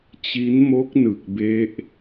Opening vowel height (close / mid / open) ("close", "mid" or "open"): close